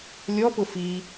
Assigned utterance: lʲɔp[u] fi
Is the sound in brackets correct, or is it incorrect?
incorrect